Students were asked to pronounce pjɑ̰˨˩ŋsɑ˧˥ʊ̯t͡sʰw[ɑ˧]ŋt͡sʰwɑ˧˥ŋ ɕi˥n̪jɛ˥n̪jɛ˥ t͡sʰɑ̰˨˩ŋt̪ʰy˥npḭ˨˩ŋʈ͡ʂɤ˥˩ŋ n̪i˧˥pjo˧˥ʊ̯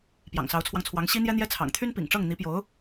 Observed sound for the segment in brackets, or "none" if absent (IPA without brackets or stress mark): ɑ˧